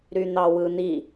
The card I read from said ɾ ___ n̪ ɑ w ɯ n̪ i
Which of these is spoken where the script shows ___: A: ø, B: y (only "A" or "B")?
B